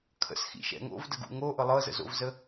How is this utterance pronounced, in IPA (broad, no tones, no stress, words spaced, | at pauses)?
kʰə̰sxḭʃɛ̰ ŋo̰vdəɡṵ ŋoʔɤ lˠɤzə̰zo̰vzə